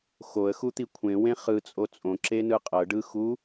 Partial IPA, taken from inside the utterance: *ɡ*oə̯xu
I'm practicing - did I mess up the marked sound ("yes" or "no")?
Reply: yes